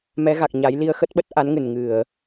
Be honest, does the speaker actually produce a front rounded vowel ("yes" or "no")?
no